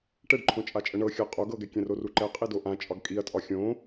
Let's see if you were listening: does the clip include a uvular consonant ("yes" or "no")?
yes